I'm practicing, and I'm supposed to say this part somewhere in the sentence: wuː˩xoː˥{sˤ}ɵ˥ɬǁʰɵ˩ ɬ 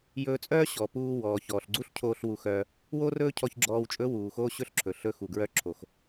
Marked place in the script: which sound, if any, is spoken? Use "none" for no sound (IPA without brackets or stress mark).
ɕ